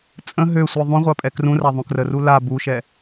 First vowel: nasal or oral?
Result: nasal